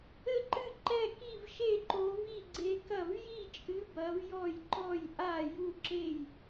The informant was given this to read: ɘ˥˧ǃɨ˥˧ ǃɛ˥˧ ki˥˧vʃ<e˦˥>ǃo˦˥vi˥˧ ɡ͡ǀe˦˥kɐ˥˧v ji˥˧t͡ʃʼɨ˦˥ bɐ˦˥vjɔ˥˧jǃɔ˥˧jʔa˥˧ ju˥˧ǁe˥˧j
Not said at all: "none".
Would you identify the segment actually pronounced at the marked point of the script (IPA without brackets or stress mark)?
e˥˧